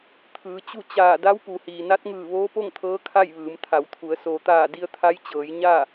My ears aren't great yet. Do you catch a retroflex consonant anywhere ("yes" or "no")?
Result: no